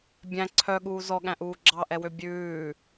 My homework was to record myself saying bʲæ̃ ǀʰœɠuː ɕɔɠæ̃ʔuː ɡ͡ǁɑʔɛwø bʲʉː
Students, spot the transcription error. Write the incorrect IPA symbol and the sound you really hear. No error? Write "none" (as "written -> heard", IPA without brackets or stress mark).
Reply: ɕ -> z